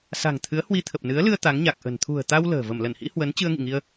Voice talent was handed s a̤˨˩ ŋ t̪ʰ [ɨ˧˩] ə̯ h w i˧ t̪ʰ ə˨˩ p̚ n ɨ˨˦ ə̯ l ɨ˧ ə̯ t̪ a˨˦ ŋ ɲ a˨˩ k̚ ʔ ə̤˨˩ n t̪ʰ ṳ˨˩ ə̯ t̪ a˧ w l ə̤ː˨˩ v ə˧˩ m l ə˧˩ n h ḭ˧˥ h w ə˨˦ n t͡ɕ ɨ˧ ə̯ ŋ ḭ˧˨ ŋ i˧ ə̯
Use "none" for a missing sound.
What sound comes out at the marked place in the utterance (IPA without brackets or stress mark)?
ɨ˨˦